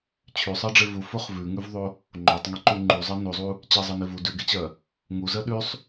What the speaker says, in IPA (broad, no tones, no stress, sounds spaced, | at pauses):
t͡ɕʰ ʉ sˤ ɜ ɖ͡ʐ e v u f o χ v ʉ ŋ ʉ v ðˤ o | ŋ͡ǃ o tˤ ŋ e ǃ u ŋ͡ǃ u zˤ ɜ n o zˤ u | t͡ɕ e zˤ ɜ n e v u d ʉ ɡ e t͡ɕ ɜ | ŋ u z ɜ ɗ ʉ sˤ